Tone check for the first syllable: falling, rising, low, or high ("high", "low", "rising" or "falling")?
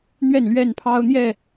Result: falling